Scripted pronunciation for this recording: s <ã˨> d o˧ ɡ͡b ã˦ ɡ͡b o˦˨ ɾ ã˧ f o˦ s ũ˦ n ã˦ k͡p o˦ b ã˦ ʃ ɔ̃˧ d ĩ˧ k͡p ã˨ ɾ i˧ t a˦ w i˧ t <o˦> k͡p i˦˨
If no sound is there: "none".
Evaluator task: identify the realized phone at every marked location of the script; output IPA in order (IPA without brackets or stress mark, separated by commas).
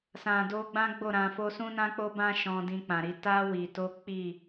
ã˨, o˦